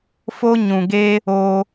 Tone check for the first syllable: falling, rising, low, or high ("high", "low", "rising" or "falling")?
high